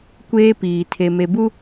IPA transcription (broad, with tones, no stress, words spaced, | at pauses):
kʷeː˦piː˨ tʰe˨me˨bu˦